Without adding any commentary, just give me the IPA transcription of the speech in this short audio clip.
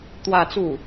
t̪wä˥˧t͡su˥˩

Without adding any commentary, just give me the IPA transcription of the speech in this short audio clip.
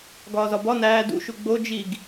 ɡɒːzɒbɒ næː dṵ ʃuɡ͡bo d͡ʒiɡ

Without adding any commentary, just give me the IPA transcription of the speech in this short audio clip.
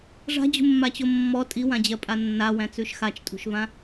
ʐa̤d͡ʑṳmːat͡ɕo mːɔ tʼiwãd͡ʑɜpʼa nːawæ̃t͡sʉʃ xat͡ʃtʼṳʃvã

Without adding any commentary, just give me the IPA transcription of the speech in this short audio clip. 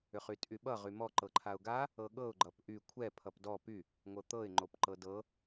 ʏχytʼyɓʌ ʁymɔ ǃɤǃʰaʊ̯ɡa | ɤɠɤʊ̯ ɡ͡ǃʌpʔy kʷʰɛ pʰʌpdɔ py | ŋʷɤt̪ɤɪ̯ ŋ͡ǃopǃɤdɤ

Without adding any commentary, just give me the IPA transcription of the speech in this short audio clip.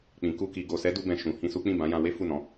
k͡pĩ˨ ku˧ki˨ ɡo˨sɛ˨˦du˧bɛ̃˨ ʃũ˨hĩ˧su˦ k͡pĩ˦˨bã˨˦jã˧we˦ fu˦˨nɔ̃˨˦

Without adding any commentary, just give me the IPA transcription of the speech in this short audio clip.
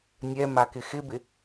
nʲɛmakɪ xɪbɪ

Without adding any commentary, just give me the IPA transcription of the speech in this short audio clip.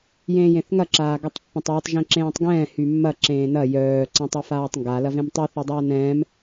jẽːjẽθŋɐ ǁaːɡɐtˤpːɛ̃tˤwɛtˤ ʒẽǁẽːtˤɡɛ̃ː hymːɐ ǁẽːnɐ jœː ǀɛ̃tˤɐfaːtˤŋɡa lɐvẽmtˤy θedˤaːnɛ̃ːm

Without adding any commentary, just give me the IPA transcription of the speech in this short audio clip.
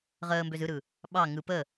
ʁəːmbøz ɯɾɯ | ɓɑ ŋɯ pə

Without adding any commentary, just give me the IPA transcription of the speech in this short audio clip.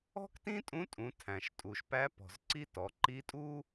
ɔ̤˥ktĩ˥tʼũ˧˥tʼũ˩˧ tʰæ̃˩ʃtʼuː˩ʃpæ˧˥pɔ̤˩z ǀi˥tɔ˩˧ ǃi˧˥tʼu˥

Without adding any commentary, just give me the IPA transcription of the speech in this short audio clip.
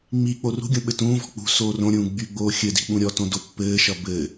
ŋ͡mi k͡porṳɡʲõ ɓɘtũːvɔ̤ k͡pṳ soːrõɾʲũː ɡ͡byɡ͡boː xʲɘdi̤ ɓũɾʲɔtõ dopːɘːʃʌ bɘ

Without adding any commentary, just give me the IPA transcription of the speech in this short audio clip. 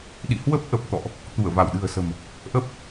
ɗḭ˧˨hwə˦˥p̚ʔə˨˩p̚t̪ɔ̰˧˨ʔ | t̪u˧˩ə̯va˧˩wɗɨ̤˨˩ə̯sə̤˨˩m | ʔə˦˥p̚

